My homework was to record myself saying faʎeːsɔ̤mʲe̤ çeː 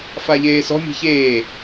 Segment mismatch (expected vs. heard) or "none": none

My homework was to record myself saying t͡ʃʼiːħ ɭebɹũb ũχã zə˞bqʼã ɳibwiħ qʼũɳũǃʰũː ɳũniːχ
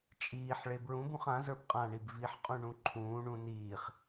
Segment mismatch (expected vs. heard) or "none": w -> v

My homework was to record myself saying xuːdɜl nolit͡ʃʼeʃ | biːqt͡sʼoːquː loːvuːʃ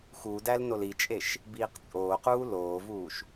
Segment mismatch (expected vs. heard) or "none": ɜ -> æ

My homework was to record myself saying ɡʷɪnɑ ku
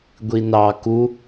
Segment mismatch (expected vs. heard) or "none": ɪ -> i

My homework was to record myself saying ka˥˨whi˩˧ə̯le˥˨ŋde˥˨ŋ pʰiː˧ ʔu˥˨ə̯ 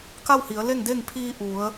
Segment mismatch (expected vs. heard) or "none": u˥˨ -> u˩˧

